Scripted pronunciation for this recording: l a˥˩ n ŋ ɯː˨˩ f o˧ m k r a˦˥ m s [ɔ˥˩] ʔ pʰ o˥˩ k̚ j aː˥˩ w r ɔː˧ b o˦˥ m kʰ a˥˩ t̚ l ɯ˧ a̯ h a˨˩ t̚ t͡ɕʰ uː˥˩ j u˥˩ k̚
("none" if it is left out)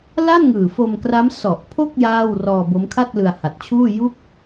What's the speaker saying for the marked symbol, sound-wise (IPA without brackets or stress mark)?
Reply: ɔ˨˩